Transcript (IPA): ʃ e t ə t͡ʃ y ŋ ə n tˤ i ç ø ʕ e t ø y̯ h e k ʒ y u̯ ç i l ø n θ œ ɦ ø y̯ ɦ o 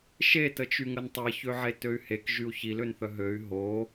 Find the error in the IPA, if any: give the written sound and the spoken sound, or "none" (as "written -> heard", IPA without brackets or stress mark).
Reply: none